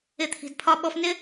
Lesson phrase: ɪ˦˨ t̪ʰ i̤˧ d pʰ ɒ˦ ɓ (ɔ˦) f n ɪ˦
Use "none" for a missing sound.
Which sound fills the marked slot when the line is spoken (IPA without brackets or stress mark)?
ɔ˦